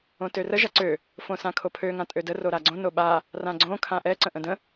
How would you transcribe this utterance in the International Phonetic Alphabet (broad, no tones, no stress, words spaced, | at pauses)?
õtørə ʒaǀø | fõsãkʰopʰø ŋãtʼødə roɾaɡ͡ǀõ noɓa | rãɡ͡ǀõ kʰãʔɛ ǀə̃ʔə̃də̃